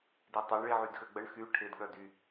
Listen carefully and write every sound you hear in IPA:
d i tˤ œ ɳ ɭ i ʕ y d x ø ɡ͡b ə ɳ x y ʈʰ ɪ d ɠ œ d y

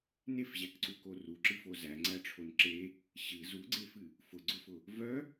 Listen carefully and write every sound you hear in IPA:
n e f ʑ æ k ǀ u k o r u ǁ ɨ f o z æ ŋ͡ǀ æ ʈ͡ʂʰ o n ǁ e | ɕ ɨ z u ɡ͡ǀ e f ɨ | f ʊ ɡ͡ǀ ʊ f ʊ | v œ

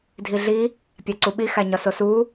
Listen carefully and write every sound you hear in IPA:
dʱ i ɮ i | pʲ æ ǀ u ɓ i x æ ɲ ɒ s o s u

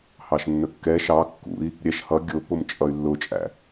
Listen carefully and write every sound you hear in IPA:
h ɑ ʃ nː ə kː ɛ ʃ ɑ kː ṵ i̯ | ɾʲ ɛ ʃ h ʌ ɡʲ ʊ p ʊ m t͡ʃʼ ʌ y̯ lː ʊ t͡ʃʼ æ̰

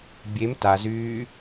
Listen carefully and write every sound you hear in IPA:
bʲ e m t a z yː

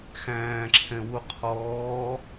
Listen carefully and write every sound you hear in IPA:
x æ̃ː ǁʰ ɛ̃ w u qʰ ɔː

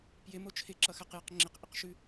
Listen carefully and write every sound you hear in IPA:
p j ɪ m o t͡ʃʰ ɪ ǁ ʌ x a q j ʌ q ŋ͡ǁ ɪ q ʔ ɪ q ʃ ʉ

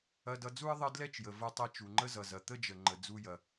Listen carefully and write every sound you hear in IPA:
ɐ˧ d ʌ˧ d͡z u˥ ə̯ ðˤ ə˥ d l ɛ˥ t͡ʃ j ə˩ v ɐ˧ tˤ ɛ˧ t͡ʃ u˩ ŋ͡ǃ ə˥ z ʌ˩ z ɐ˩ t̪ ə˥ d͡ʒ ə˩ ŋ͡ǃ ə˩ d͡z u˧ j ɐ˩

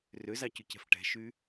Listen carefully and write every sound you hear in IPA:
r ø z ɑ c ʉ c ɛ̤ f ʈ ɛ̤ ʃ y

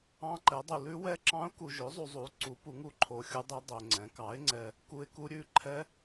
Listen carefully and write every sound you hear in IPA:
ɑ̃˦˥ ǃ ɛ˨˥ dˤ u˧ l ʉ˦˥ w ɛ˦˥ ǁ ɑ̃˦˥ ʊ̯ k u˧ ʒ ø˨˥ zˤ u˧ zˤ u˨˥ ǀ u˨˥ p u˨˥ ŋ u˥˩ ǃʰ o˧ xʲ u˦˥ dˤ ɛ˦˥ dˤ ø˧ ŋ͡ǀ ɛ̃˨˥ k ɑ˨˥ ɪ̯ ŋ͡ǀ ɛ˧ | k u˦˥ ɪ̯ k u˦˥ ɾʲ ʉ˦˥ ǃʰ ɛ˦˥

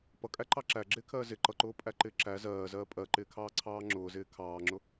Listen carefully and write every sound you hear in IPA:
p ʌ kʼ æ ǃ ɑ ǁ æ ɡ͡ǁ ɪː kʰ ɜː z ɪ ǃ ʌ ǃ ʊː pʼ æ ǃ ɪː ǁ æ z ɜː z ɜː pʼ ɜ ǃ ɪː kʰ ɑː ǀʰ ɑː ŋ͡ǁ ʊː z ɪː kʰ ɑː ŋ͡ǁ ʊ

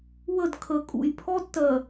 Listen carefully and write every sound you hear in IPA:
w ə˦˨ d kʰ ə˨ kʼ ṵ˨ j pʰ ɔ˦ d t ɜ˨

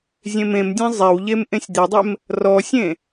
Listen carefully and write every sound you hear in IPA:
zʲ ẽ m ẽ m dʲ ẽ zˤ e w ʎ e m ʔ ẽ sʲ d̪ e dˤ e m | r ɔ sʲ ẽ

